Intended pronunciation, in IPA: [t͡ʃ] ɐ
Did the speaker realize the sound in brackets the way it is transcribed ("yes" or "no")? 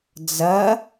no